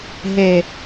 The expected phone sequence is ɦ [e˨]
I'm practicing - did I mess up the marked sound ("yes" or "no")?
no